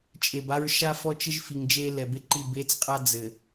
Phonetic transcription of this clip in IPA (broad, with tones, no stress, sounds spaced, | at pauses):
t͡ʃʼ e˨ b a˦ ɹ ʃ a˦ f ɔ˦ t͡ʃ ɘ˦ ʒ f i˨ ŋ d͡ʒ e˦ l ɛ˨ b e˦ ǃ i˦˨ b e˦ t͡s qʼ a˦ d͡z ɘ˨